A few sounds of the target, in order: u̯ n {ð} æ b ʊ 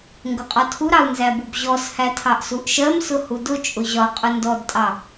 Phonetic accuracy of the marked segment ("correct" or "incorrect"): incorrect